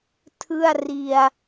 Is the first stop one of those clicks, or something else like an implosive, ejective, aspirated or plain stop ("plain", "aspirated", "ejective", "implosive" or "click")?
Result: aspirated